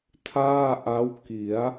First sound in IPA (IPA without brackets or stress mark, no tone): tʰ